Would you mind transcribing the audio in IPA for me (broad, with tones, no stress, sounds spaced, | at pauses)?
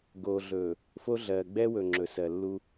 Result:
ɡ oː˨ ɮ ɵː˨ | f o˦ ɮ ɜː˨ ɡ͡b ɛː˦ w ɵ˨ ŋ͡ǁ ɵ˨ s ɜ˨ lː u˦